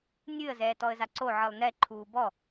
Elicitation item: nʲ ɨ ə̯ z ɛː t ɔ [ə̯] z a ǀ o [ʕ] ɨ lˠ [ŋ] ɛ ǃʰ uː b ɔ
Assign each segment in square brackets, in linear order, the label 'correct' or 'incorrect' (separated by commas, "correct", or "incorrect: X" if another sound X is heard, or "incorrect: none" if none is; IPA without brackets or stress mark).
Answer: correct, correct, incorrect: n